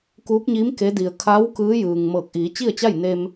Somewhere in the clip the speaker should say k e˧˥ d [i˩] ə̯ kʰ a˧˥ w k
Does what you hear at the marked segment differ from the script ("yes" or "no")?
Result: no